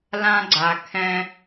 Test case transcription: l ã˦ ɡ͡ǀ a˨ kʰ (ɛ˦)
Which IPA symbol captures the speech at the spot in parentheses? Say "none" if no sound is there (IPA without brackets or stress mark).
ɛ̃˦